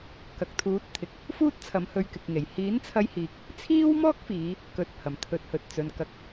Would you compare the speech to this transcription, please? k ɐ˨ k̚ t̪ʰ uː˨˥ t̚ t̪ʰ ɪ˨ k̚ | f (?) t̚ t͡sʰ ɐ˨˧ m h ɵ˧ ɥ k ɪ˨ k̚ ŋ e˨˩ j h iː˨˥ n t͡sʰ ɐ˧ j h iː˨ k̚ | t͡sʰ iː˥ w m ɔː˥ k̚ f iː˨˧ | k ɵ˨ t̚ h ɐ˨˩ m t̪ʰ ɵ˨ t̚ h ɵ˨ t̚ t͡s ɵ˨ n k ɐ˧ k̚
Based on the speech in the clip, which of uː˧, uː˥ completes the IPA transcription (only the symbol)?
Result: uː˥